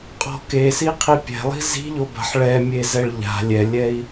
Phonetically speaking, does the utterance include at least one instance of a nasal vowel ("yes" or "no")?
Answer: no